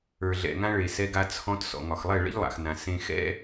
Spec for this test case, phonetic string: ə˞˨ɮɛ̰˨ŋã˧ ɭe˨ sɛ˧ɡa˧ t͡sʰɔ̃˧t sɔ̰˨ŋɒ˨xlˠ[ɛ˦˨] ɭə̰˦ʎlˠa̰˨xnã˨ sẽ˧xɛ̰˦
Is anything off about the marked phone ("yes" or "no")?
no